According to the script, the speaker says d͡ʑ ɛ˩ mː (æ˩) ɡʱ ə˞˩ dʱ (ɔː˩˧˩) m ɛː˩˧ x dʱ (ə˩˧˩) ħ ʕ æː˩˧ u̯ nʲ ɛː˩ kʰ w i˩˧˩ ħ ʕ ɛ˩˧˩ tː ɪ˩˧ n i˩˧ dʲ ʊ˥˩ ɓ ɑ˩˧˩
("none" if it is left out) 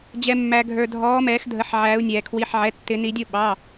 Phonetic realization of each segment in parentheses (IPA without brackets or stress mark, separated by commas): æ˩, ɔː˩˧, ə˩˧˩